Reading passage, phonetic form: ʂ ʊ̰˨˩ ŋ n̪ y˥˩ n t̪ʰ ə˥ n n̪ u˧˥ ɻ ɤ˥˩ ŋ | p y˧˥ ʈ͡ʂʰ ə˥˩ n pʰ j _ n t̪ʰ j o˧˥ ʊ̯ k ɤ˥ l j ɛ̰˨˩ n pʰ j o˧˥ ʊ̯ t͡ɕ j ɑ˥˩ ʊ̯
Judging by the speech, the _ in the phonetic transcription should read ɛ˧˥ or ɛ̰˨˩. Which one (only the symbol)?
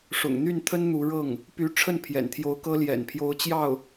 ɛ̰˨˩